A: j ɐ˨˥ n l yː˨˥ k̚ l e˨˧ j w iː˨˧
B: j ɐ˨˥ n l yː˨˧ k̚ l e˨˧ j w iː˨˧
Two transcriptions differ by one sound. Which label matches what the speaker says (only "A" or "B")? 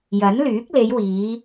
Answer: A